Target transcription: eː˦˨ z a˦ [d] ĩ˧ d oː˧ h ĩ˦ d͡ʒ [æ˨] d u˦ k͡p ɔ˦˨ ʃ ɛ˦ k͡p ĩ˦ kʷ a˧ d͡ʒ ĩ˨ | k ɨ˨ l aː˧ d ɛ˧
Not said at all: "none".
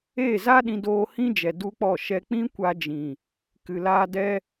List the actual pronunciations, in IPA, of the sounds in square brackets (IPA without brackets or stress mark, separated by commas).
ɗ, ɛ˨